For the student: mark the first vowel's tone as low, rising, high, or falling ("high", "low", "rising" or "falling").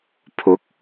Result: rising